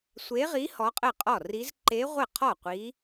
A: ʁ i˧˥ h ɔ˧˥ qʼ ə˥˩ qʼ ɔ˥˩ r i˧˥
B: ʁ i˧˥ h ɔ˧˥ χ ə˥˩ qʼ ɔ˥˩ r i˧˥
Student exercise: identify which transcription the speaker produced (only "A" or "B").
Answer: A